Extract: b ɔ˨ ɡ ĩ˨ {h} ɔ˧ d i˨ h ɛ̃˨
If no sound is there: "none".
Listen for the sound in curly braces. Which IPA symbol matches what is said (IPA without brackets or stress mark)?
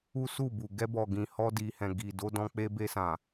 h